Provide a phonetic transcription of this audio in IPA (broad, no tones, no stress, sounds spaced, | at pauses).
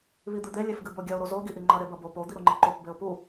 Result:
β i d̪ ɨ d̪ e lʲ e f ɡ ɨ b o ɡʲ ɐ ʊ̯ ɾ o z o ɡ i ʔ i ŋ͡ǃ ɐ ɾ e b ɐ b o p o d̪ i ɾ u ŋ͡ǃ i ǃ o p b e ʊ̯ p u